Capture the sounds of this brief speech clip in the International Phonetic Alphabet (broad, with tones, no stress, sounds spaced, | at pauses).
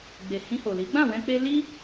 ɡ͡b e˨ h ĩ˧ h o˨ l i˨˦ ɡ͡b ã˦˨ w ɛ̃˧ k͡p e˧ l i˦